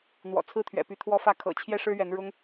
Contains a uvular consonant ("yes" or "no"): no